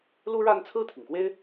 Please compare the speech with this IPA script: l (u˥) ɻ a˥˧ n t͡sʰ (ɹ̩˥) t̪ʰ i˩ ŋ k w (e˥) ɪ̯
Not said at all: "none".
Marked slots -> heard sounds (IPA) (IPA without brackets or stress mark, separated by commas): u˥, ɹ̩˥˩, e˥